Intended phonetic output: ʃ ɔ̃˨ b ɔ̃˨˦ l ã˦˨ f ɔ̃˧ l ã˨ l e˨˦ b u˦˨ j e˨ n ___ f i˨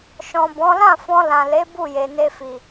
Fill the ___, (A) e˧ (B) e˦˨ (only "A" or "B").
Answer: A